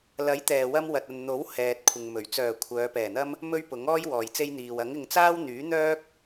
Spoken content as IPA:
l ɐ˨˥ j t̪ ɛː˨ w ɐ˧ m w ɐ˨ t̚ ɐ˨ n n̪ o˨˥ w h ɛː˨ t̚ kʷʰ ɪ˨ ŋ m ɵ˨˩ ɥ t͡s œː˨˩ kʷʰ œː˨˧ p ɛː˨˩ n̪ ɐ˥ m | m ɵ˥ ɥ p ʊ˨˥ ŋ ɔː˥ j w ɔː˨ j t͡s e˧ j n̪ iː˨ w ɐ˨˥ ŋ ɪ˧ ŋ t͡s aː˥ w n̪ yː˨˥ n̪ œː˥ k̚

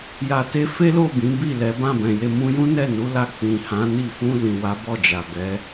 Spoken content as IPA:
j a˨ t e˧ f e˦ l o˦˨ b ĩ˨˦ b i˦˨ l ɛ˨˦ b ã˦˨ b ɛ̃˨ j e˧ m ũ˧ j ũ˦ n ɛ˦˨ n u˨˦ l a˧ k͡p ĩ˨ h ã˨˦ n i˦˨ f ũ˧ l ĩ˨ w a˨˦ b ɔ˦˨ d͡ʒ a˨ b ɛ˨˦

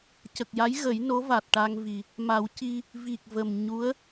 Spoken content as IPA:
c ə˨˩ k̚ j a˧˥ j ɣ ə˨˩˦ j n o˧˥ v a˨˩ t̚ ʈ a˧ ŋ v i˨˩ | m a˨˩˦ w c i˧ | v i˨˩ k̚ v ə˨˩ m ɲ u˧˥ ə̯

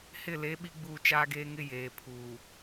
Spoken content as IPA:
h ɪ˦˨ l e˨˦ ɓ i˦ ɡ͡b uː˦˨ t͡ʃ aː˦ ɡ eː˦ ŋ ɪ˦ j eː˨ pʰ uː˨

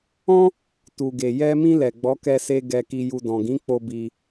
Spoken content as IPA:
ɔ̃˦ | t u˨ ɡ e˨ j ɛ˧ m ĩ˧ l ɛ˨ ɡ͡b ɔ˨˦ k ɛ˧ s e˧ ɡ ɛ˧ k i˧ j u˧ d ɔ̃˨ ɡ ĩ˨˦ k͡p o˧ b i˧

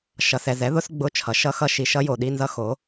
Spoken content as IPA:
ʃ ʌ˨ s ɛ˨ z ɛ˩˥ ð ʊ˦˥ s ɡ͡b ʊ˧˥˧ t͡ʃʰ ʌ˩˥ ʃ ʌ˧˥˧ x ʌ˦˥ ʃ i˨ ʃ ʌ˦˥ j o˨ ɗ i˧˥˧ n z ʌ˦˥ x o˩˥

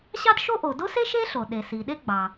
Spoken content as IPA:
ɕ ɑ˥ d ʃ o˥ ʔ o˩ d o˥ s e˥ ʃ e˥ ɬ o˩ ɗ e˩ s i˩ ɗ e˥ ɡ͡b ɑ˩

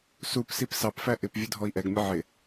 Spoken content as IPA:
s u p s i p s ɑ p f æ ʔ ɪ p vʲ ʊ dʱ ɔ i̯ ʔ ɛ ɡ mʲ ə ʕ ɪ

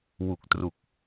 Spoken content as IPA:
w u˨˩ k̚ t r u˨˩ k̚

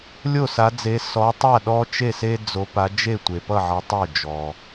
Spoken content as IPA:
lʲ o˥˩ s a˨˦ d͡z e˨˦ s ɔ˨˦ tˤ a˥˩ ɗ ɔ˦ t͡ʃ e˥˩ s e˦ d͡z o˨˦ p a˨˦ d͡ʒ e˥˩ tʷ e˩ p ʌ˥˩ ʕ ʌ˨˦ tˤ o˥˩ d͡ʒ ɔ˩

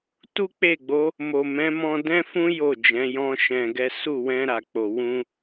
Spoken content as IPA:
t u˦ k͡p e˦˨ ɡ͡b o˨˦ | m o˨ m ɛ̃˨˦ m ɔ̃˧ d ɛ̃˦ f ũ˦ j o˦˨ d͡ʒ ɛ̃˨˦ j ɔ̃˦ ʃ ɛ̃˧ ɡ ɛ˦ s u˦˨ w ɛ̃˧ ɾ a˨ k͡p o˨ w ũ˧

